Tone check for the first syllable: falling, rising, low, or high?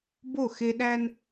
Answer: falling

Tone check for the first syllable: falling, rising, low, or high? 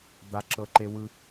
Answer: high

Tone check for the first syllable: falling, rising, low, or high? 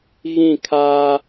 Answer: falling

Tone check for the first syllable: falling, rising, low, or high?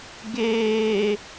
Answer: low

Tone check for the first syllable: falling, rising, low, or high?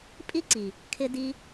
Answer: high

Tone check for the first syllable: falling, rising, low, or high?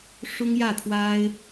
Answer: high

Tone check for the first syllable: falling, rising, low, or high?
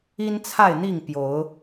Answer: high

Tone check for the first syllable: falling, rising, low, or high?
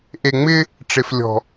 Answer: low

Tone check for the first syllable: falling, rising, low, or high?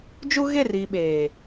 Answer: high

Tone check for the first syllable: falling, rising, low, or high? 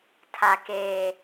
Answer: low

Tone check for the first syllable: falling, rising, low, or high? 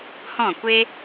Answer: falling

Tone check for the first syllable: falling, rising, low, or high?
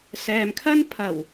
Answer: low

